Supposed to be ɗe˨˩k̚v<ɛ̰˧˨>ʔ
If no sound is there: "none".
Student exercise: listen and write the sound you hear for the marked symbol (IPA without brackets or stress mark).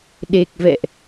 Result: ɛ̰˧˨